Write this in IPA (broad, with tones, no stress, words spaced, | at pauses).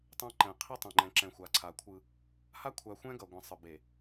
tˤɛ̃˦ǃɛ̃˨ qʰi˦tˤɛ̃˨ŋ͡ǃɛ̃˨ǁɛ̃˨ xʷa˨ǀʰa˨kʷʰɯ˦ | ha˦kʷʰa˨ xʷɛ̃˦ɡʌ˨ɡʷɛ̃˨ sˤɯ˨ be˨